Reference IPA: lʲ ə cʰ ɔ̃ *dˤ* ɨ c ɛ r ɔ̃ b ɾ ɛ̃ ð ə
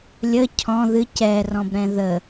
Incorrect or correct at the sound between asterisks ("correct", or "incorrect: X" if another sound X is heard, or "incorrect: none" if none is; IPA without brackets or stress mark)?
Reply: incorrect: ð